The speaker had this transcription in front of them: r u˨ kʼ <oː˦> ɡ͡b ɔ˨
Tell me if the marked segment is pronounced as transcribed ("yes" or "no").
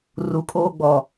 yes